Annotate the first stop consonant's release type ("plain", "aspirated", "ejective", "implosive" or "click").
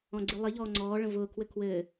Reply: click